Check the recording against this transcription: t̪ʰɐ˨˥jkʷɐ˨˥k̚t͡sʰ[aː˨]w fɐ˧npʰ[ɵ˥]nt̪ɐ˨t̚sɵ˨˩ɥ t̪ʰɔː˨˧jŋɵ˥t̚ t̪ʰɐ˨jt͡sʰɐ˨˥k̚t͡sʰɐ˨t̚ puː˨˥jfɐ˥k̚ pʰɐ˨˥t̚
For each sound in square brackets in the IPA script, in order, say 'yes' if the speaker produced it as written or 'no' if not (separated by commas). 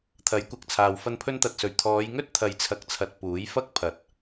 yes, no